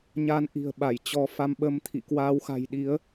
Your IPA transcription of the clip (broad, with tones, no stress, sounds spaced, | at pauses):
ɲ a˨˦ n ʔ i̤˨˩ ə̯ ɓ a˧˩ j t͡ɕ ɔ˨˦ f a˧ m ɓ ə˧ m t̪ʰ ḭ˧˨ k w aː˨˦ w x a̤˨˩ j ɗ i˨˦ ə̯